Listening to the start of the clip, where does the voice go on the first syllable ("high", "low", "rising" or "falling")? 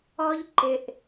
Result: high